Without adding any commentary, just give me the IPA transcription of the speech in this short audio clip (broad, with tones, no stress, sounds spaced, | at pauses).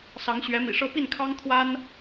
s ɑ˧˥ ŋ ɕ ɥ ɛ˧˥ m ḭ˨˩ ʂ ɤ˥ p i˥˩ n kʰ ɑ˥ ŋ t̪ʰ w a˥ n